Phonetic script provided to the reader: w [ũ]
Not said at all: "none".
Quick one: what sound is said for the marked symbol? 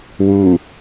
u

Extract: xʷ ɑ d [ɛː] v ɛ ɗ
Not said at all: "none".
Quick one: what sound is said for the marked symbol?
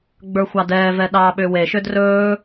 ɛː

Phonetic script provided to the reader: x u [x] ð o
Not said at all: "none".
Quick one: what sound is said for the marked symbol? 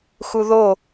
none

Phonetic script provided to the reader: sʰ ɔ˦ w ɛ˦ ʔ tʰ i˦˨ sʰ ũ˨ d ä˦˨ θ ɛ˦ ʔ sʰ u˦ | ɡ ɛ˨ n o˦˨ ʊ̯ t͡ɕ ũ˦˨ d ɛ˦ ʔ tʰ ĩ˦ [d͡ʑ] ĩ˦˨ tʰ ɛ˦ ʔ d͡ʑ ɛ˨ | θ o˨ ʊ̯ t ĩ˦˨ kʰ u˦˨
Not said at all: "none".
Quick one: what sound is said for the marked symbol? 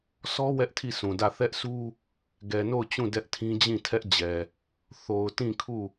d͡ʑ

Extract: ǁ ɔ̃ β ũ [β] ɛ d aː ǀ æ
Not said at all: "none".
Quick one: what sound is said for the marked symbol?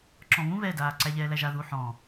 β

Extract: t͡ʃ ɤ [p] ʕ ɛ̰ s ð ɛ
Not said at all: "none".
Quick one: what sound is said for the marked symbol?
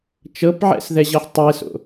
p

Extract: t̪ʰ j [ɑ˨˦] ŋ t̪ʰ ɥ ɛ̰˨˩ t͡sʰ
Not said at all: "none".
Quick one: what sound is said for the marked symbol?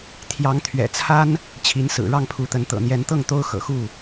ɑ˨˦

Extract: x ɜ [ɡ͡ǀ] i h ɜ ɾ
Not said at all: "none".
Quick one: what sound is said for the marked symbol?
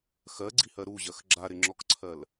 ɡ͡ǀ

